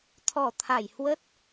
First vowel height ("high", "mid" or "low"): mid